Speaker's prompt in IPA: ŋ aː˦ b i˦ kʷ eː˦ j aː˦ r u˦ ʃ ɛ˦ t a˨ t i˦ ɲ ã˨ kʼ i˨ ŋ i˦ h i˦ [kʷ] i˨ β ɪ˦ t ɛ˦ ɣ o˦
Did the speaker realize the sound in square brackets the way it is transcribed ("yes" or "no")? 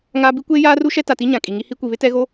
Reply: yes